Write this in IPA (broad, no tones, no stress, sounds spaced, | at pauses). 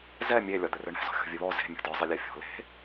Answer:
z ɛ mʲ e lʲ ɒ d̪ ɘ r ɘ ɳ ɛ̤ z ɔ̤ xʲ ɔ̤ vʲ ɘ β ɔ z e̤ mʲ ɔ̤ d ɒ zˤ ɘ lʲ a fʲ ɔ̤ l e̤